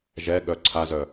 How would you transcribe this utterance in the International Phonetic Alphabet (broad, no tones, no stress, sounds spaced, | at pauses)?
ʒ ɛ ɠ œ ǀʰ a z œ